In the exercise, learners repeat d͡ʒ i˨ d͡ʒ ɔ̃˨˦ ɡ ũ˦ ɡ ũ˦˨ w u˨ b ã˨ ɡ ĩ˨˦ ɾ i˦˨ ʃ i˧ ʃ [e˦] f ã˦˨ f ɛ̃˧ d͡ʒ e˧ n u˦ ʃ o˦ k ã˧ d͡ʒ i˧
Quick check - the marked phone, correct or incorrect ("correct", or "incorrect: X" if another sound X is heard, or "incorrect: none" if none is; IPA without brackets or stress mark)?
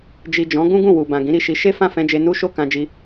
correct